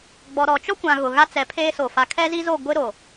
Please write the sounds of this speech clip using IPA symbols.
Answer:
ɡ͡b ɔ˨ ɾ ɔ˨ t͡ʃ ɔ˦ kʷ ã˨ ɣ ʊ˨ ɣ a˦ t͡s ɛ˨˦ pʰ eː˦ s o˨ f a˨ kʰ ɛ˦ z i˦ z o˦˨ ɡʷ ɪ˦ ɾ o˨

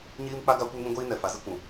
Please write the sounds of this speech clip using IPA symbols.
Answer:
ɲ iː˦ m k͡p a˦ ɡ a˦ kʷ ɛ˦ ŋ ĩ˦ ɡʷ iː˦ n ɛ˨ f a˨˦ z i˦ kʷ ũ˨

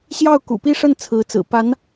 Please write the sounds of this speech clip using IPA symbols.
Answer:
ɕ j ɑ˥˩ ʊ̯ k ṵ˨˩ p i˥˧ ʂ ə˥˩ n t͡sʰ ɹ̩˧˥ t͡s ɹ̩˨˩ p a˧˥ n

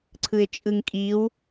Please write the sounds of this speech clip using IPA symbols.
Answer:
ǀʰ ɯ ɪ̯ t͡ʃʼ ɯ ŋ kʼ i w

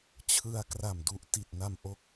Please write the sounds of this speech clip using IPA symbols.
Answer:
t͡ɕʰ ɯ˧ a̯ k r a˨˩ m d u˨˩ ʔ t i˨˩ t̚ n a˧ m ʔ o˦˥ k̚

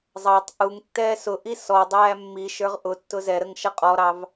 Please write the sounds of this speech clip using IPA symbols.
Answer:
zˤ ɑ tˤ ʔ u ŋ tː ɛː s ʊ ʔ i s ɔ dˤ æː mː i ʃ ə˞ ʁ ʔ ʊ tː ʊ z ɛ ɾ ə ŋ ʃ ʌ qʼ ɔ ɾ ɑ v

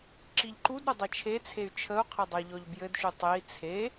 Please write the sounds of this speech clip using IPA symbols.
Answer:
ǁ i ʎ ǃ u d ɾ ø dˤ ɘ t͡ʃʰ e t͡sʰ e y̯ t͡ʃʰ ə u̯ qʰ ɘ dˤ ə i̯ ʎ ɔ ʎ b j ɘ d ʃ u tˤ e i̯ t͡sʰ e

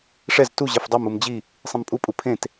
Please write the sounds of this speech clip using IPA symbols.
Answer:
ʂ ɛ z t u ʑ ɛ f dˤ e m u m d͡ʑ i | sˤ ẽ m pʼ u pʼ u pʰ ẽ t

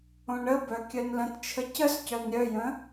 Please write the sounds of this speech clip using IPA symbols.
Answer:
õ ɳ ə b œ kʲ œ n l ə̃ t t͡ʃʰ ə c ə s c œ n ɾʲ œ j ə̃

